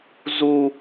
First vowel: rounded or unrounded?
rounded